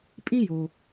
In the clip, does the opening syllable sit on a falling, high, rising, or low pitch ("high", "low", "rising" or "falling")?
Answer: high